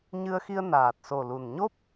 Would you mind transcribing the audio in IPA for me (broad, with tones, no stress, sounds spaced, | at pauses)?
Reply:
ɲ ɨ˧ ə̯ x i˧ ə̯ n aː˨˩ t̚ s o˨˩ l u˨˩ n ɲ o˦˥ p̚